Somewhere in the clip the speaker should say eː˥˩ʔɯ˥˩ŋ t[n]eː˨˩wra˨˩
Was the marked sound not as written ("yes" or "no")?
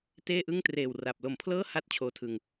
yes